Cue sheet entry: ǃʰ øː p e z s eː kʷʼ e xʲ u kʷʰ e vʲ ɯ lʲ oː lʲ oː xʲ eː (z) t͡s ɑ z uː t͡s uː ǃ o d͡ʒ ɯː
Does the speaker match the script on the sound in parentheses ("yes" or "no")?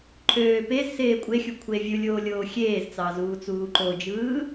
yes